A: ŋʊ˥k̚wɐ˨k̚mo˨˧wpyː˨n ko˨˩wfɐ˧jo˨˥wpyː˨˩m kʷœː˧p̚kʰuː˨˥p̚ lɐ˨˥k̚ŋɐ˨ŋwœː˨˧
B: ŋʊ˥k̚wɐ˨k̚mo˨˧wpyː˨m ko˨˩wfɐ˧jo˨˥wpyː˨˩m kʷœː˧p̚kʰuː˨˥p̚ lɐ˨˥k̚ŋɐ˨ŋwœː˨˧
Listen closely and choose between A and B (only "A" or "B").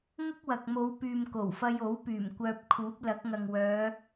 B